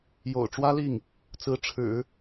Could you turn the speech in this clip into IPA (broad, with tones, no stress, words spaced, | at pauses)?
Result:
jo̰˨˩ʊ̯ʈ͡ʂwä˥li˥˩ŋ | t͡sɹ̩˧˥ʈ͡ʂʰɻ̩˨˩˦